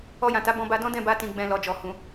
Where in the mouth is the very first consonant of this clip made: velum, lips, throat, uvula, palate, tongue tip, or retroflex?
palate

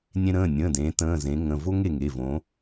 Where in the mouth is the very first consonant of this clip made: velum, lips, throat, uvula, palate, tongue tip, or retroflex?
tongue tip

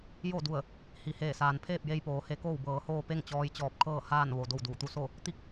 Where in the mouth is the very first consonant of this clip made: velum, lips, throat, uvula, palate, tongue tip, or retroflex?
palate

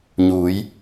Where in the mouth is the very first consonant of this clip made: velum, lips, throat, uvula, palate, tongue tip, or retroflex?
palate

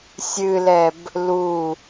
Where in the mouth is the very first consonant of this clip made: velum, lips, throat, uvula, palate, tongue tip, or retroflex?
tongue tip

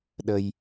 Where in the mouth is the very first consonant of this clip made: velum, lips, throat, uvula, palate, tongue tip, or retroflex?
tongue tip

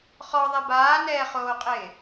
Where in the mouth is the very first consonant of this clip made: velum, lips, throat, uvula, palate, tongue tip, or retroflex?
uvula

